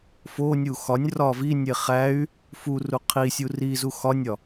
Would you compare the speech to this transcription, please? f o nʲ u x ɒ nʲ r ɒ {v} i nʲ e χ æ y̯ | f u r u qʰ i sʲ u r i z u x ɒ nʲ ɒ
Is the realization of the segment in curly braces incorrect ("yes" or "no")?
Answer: no